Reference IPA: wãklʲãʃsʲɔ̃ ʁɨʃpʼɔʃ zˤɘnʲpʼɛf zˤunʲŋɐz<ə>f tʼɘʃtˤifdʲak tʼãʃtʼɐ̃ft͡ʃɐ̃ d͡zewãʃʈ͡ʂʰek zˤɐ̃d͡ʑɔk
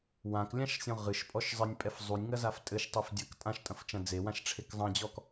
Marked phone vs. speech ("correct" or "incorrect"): incorrect